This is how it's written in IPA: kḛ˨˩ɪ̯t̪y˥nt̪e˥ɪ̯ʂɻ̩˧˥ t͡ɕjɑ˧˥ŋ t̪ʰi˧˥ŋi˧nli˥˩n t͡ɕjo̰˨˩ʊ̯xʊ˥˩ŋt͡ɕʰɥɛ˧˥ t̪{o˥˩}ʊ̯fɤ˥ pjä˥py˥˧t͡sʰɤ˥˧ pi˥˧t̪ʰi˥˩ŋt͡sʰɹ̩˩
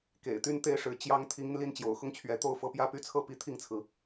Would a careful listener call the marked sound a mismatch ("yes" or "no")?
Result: no